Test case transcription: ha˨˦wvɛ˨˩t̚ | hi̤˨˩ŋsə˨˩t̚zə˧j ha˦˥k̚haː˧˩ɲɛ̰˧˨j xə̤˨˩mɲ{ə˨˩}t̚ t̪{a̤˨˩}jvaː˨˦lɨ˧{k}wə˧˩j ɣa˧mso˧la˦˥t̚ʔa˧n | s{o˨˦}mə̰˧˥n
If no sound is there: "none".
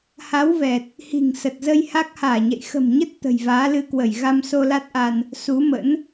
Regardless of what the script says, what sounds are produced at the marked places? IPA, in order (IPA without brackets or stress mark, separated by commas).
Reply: ə˦˥, ə̤˨˩, k, u˨˦